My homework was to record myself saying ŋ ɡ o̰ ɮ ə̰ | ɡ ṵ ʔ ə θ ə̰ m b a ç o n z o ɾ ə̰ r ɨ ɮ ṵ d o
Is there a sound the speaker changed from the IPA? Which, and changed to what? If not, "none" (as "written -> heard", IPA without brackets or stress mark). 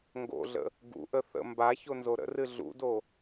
none